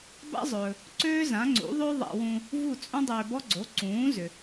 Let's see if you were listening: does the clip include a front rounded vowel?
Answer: yes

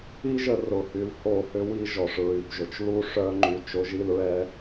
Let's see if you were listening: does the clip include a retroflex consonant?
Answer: yes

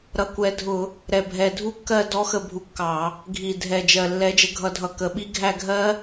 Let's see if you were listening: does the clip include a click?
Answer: no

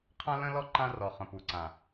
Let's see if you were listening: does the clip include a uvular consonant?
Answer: yes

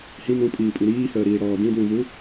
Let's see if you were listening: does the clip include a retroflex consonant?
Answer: yes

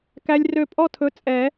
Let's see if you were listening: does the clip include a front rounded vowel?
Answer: yes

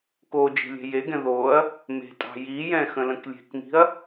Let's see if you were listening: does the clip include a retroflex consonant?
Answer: no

